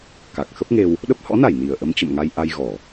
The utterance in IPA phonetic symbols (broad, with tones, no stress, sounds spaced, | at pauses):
k a˨˩ k̚ x ə˦˥ p̚ ŋ e˧ w | ɗ ə˦˥ p̚ h ɔ̰˧˥ n a˧˩ j n i˨˩ ə̯ ʔ ə˧ m t͡ɕ ə̰˧˨ m ŋ a˧ j ʔ a˧ j ɣ ɔ˧˩˨